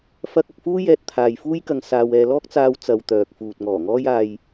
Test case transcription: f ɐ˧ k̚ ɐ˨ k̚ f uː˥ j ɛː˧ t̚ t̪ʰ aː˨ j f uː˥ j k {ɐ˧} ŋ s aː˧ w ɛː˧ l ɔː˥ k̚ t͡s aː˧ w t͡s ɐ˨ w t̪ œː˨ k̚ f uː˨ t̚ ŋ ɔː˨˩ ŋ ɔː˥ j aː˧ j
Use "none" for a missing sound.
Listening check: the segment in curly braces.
ɐ˧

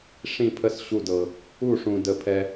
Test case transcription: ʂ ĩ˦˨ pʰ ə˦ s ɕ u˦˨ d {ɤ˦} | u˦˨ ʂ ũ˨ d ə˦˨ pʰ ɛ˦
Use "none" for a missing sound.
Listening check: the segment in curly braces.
ɤ˨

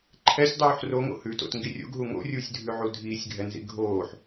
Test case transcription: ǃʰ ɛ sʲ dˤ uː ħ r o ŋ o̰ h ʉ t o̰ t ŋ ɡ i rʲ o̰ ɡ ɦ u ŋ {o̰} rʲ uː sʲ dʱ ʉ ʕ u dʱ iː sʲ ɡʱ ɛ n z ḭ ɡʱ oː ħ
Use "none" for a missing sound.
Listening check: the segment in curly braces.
o̰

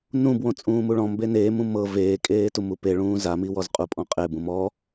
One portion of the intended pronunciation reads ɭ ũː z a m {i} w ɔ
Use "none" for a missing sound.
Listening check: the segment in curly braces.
i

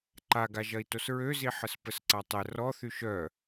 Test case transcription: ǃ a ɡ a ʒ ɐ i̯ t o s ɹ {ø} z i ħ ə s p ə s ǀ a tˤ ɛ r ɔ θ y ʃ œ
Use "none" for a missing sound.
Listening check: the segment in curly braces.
ø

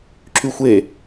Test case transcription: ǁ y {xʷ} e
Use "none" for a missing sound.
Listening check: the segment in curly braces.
xʷ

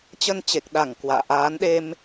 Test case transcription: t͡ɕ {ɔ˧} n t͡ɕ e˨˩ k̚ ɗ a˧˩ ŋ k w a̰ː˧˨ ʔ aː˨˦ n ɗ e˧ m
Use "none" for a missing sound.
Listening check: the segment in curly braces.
ə˧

